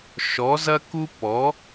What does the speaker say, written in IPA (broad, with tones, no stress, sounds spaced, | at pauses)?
ʃ ɔ˩˥ z ɐ˥ k u˥ p ɔ˩˥